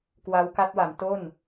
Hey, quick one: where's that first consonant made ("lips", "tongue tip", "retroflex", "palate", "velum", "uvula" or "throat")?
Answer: velum